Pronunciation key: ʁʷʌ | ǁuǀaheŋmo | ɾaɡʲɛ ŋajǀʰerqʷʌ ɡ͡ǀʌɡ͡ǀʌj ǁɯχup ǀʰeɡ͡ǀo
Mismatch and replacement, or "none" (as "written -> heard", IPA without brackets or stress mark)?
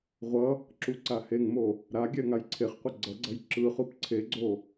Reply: r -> χ